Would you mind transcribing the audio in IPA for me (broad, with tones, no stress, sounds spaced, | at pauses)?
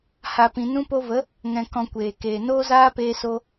h a˨ p ĩ˨ n ũ˧ p o˧ v ə˨˦ | ŋ ɛ̃˨ k ɔ̃˨ kʷ eː˨ k eː˨ n oː˦ z aː˦ p eː˧ s o˧